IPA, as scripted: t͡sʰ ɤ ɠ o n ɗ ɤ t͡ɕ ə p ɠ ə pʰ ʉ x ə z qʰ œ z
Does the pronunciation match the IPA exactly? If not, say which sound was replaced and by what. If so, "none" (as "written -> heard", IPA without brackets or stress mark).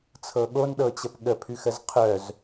none